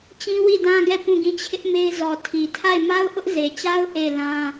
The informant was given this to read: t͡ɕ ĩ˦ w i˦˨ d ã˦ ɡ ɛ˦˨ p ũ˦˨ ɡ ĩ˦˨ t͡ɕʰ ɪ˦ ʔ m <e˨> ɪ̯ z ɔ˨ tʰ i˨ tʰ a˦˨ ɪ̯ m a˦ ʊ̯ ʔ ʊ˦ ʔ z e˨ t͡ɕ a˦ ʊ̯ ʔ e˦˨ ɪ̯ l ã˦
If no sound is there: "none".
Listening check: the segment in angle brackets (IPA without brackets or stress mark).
e˦